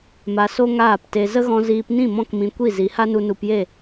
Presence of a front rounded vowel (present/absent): absent